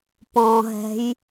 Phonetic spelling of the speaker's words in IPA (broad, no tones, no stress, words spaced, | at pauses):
pɔ̃ɦɛ̤j